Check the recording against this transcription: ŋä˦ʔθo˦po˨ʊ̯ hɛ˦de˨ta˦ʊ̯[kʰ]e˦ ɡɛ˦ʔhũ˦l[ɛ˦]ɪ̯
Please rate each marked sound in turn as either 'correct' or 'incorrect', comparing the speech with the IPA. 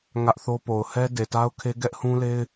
correct, incorrect

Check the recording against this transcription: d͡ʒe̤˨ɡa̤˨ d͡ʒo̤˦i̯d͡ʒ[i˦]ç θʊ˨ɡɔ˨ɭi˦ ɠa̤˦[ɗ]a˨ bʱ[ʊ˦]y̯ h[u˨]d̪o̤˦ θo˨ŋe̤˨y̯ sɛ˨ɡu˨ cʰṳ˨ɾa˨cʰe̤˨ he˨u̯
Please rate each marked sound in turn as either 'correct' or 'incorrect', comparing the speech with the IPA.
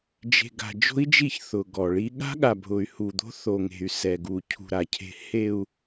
incorrect, incorrect, incorrect, correct

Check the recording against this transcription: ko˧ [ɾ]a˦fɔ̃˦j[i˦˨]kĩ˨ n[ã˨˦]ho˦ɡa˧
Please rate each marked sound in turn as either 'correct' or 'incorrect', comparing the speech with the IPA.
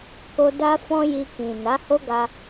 incorrect, incorrect, incorrect

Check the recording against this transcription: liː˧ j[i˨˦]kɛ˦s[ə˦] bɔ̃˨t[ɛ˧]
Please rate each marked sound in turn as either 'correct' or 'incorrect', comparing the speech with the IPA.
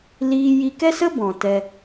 incorrect, correct, correct

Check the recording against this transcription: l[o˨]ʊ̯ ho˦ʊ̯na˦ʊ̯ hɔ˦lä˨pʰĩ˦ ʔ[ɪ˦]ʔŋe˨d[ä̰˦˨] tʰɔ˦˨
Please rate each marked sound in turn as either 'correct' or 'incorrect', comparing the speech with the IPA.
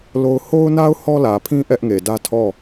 incorrect, incorrect, incorrect

